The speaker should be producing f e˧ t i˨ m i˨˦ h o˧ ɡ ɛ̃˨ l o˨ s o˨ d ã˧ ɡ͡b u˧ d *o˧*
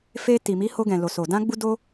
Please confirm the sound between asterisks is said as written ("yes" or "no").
yes